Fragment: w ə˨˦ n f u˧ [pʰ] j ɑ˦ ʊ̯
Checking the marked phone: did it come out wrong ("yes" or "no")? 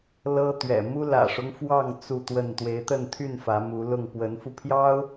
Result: no